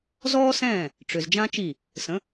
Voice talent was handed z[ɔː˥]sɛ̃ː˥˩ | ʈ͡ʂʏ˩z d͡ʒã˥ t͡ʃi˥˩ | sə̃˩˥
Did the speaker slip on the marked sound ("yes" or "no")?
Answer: no